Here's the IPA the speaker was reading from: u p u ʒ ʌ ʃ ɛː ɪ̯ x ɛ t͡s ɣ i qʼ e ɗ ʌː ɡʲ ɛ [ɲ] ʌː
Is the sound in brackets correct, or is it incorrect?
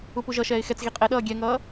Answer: incorrect